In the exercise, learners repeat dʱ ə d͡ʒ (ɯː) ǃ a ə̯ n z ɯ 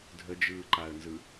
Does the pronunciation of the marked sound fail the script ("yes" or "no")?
no